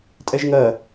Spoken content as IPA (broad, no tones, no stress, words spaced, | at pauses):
tʼɛʒŋɜ